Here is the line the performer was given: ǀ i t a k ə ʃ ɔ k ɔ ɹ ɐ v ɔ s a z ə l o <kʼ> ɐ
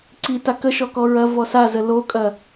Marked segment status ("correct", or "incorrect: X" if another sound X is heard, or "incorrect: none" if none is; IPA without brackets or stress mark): correct